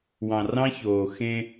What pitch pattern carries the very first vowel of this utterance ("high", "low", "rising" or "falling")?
low